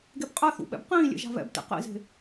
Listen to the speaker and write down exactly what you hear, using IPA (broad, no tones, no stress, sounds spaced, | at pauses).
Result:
ɡ e b qʼ ɛ θ ṵ ɓ ɛ̰ b q ĩː lʲ ḛ ʒ a̤ β ɛ̰ b t ḛ q ḭ z e̤